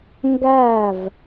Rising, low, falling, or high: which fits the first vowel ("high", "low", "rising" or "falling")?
falling